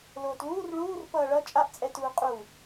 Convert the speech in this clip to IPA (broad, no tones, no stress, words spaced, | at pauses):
loːtluːr ɭuːr pʌːɭʌ t͡ʃʼaʔt͡sʼɛtuː qʼu